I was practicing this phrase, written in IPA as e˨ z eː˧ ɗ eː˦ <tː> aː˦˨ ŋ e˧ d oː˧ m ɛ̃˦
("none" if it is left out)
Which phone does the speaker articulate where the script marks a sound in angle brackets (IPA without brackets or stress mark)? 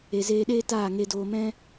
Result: t